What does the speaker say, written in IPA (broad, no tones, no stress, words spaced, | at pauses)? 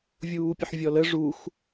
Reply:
vʲuːpʲəħvʲɔlə ʐux